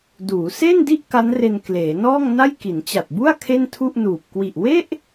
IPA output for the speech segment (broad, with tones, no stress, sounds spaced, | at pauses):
d uː˩˦ s eː˥˩ n d i˥˩ ʔ k a˦˥ n r e˧ n k l eː˩˦ n ɔː˥˩ ŋ n a˥˩ j k i˩˦ n t͡ɕ a˨˩ t̚ b u˥˩ a̯ kʰ e˥˩ n tʰ u˥˩ ʔ n uː˨˩ p̚ k w i˨˩ ʔ w e˥˩ ʔ